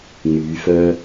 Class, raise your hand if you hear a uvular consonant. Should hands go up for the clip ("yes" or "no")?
no